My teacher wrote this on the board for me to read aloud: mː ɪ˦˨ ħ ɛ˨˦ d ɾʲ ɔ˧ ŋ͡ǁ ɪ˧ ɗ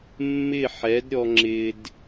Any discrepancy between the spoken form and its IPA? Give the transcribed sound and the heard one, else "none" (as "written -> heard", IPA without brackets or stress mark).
ɗ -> d